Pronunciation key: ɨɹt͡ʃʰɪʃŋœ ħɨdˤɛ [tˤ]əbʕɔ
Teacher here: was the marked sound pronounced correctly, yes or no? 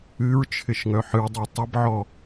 yes